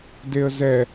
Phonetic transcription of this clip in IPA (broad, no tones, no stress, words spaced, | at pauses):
deə̯zɛ